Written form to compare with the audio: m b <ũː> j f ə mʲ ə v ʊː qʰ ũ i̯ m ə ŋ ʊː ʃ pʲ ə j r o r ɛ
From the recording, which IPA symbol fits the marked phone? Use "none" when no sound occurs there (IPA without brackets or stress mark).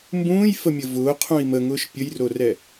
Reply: ũː